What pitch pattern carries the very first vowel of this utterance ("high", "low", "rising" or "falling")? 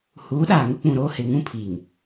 rising